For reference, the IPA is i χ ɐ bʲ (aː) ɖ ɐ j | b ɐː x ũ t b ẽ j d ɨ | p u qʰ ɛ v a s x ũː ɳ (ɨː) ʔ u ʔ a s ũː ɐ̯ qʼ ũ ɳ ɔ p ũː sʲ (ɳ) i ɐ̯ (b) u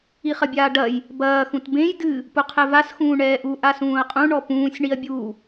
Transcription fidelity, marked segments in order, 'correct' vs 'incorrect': correct, incorrect: ɛː, correct, incorrect: bʲ

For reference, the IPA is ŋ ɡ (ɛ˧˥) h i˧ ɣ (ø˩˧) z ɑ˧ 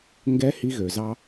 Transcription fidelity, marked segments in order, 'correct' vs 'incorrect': correct, incorrect: ø˩

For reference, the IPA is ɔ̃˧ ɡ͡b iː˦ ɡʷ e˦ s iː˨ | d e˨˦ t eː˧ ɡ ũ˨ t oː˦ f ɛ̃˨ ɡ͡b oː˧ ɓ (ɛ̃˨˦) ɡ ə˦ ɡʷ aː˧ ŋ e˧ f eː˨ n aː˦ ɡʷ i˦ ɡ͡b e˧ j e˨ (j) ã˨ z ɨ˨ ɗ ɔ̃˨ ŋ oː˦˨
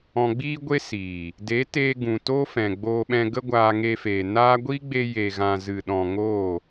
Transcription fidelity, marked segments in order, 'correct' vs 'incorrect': incorrect: ɛ̃˧, incorrect: ɣ

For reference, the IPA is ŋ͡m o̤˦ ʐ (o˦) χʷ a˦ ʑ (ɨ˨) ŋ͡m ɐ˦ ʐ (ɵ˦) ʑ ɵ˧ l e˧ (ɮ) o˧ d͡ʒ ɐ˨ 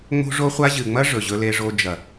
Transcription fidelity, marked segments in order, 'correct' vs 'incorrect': correct, correct, incorrect: ɵ˨, incorrect: ʐ

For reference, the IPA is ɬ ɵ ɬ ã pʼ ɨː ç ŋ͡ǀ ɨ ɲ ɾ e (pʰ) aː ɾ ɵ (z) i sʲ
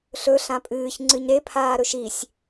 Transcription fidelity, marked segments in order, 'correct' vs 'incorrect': correct, incorrect: ʃ

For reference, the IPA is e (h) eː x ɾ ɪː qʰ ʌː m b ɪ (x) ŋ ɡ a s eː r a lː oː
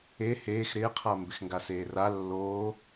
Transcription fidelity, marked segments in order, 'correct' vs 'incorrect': correct, correct

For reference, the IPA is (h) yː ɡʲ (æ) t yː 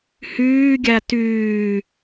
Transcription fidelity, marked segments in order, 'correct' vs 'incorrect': correct, correct

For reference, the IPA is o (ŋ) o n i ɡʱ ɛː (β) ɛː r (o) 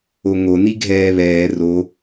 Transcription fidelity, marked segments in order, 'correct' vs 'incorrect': correct, correct, correct

